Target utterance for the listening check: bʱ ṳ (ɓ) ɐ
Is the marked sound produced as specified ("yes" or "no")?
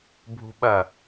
yes